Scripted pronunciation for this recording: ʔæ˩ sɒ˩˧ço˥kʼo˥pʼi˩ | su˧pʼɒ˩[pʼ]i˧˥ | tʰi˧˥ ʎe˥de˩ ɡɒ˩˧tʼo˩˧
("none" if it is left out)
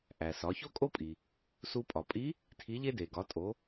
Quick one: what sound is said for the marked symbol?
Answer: pʼ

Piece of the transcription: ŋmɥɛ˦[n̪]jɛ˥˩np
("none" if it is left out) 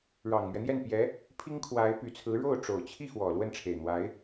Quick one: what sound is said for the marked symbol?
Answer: n̪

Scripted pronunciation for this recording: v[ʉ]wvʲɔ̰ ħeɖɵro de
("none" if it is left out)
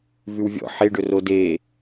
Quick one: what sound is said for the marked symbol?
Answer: ʉ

